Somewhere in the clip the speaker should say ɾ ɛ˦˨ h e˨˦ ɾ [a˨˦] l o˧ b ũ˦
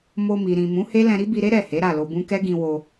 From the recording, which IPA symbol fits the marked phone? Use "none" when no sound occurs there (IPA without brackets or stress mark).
a˦˨